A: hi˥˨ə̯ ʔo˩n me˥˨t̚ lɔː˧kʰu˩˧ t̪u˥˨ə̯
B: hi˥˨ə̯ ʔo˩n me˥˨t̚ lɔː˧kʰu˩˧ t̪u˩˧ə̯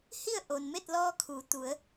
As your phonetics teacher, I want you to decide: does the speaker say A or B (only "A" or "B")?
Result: B